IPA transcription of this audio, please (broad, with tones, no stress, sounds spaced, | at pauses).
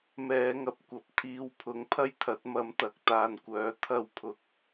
m ɛː˨˧ ŋ ɐ˨ p̚ kʷ ɐ˨ p̚ t̪ʰ iː˨˧ w pʰ ʊ˨˥ ŋ pʰ ɐ˥ j t̪ʰ ɐ˨˥ t̚ m ɐ˨˥ m t̪ ɐ˨ k̚ t̪ aː˨ n kʷ œː˨˥ t̪ʰ ɐ˧ w pʰ ʊ˨ k̚